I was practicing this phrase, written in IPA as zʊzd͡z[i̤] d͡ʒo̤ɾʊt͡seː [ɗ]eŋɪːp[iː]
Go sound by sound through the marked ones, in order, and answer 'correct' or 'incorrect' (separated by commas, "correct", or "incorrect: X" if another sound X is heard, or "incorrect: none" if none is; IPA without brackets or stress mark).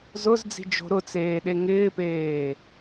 correct, correct, incorrect: eː